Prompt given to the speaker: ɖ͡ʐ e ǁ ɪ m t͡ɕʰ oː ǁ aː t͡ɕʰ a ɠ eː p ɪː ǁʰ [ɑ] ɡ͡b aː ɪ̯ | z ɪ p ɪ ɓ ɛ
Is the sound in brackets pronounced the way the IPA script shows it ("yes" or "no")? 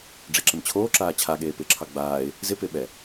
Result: yes